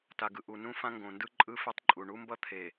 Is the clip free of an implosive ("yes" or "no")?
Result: yes